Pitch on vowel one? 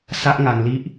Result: high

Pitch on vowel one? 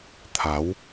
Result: rising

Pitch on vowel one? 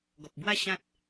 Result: low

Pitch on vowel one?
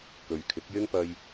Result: low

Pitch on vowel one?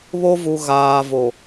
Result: high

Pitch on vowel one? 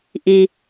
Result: low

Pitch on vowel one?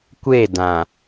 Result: falling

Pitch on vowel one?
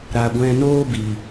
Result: low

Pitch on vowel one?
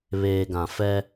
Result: low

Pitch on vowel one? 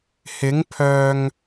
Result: rising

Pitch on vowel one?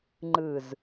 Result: low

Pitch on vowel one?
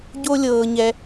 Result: high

